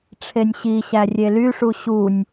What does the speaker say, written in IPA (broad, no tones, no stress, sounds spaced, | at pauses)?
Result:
ʈ͡ʂʰ e nʲ ɕ i ɕ æ rʲ e l y ʂ u ɕ u nʲ